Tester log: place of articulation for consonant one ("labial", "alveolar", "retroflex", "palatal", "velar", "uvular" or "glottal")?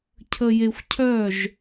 palatal